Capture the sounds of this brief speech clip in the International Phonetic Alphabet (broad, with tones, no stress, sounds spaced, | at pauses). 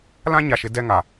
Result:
l ã˦ ɲ a˨ ʃ ɪ˨ d ɛ˦ ŋ a˨